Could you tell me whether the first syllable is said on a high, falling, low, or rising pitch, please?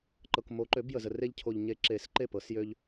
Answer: low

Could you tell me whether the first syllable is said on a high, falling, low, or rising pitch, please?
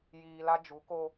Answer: low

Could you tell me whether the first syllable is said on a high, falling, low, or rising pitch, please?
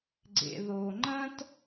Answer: low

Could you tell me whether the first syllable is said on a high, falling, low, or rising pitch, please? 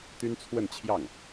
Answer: high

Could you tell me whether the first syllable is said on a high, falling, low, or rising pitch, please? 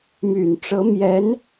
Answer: low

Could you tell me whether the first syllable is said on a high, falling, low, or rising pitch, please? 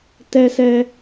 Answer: high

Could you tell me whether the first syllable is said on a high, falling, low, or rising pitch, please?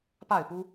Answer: falling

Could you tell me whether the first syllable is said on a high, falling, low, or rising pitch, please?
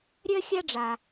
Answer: high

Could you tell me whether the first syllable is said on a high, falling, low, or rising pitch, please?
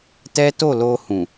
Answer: high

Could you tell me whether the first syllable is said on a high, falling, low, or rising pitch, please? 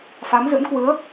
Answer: rising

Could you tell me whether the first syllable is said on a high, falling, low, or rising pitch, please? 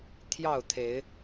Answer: falling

